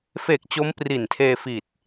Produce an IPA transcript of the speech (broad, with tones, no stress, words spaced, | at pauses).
fe˨˩k̚ t͡ɕo˦˥mpri˨˩ntʰeː˧ fi˨˩t̚